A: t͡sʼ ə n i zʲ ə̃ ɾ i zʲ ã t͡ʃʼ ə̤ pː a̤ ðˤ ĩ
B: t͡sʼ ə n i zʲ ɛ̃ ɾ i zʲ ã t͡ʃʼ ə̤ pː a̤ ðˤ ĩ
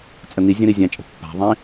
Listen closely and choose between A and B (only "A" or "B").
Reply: A